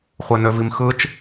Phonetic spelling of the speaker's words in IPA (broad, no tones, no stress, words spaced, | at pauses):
χʷenøvimxɯt͡ʃ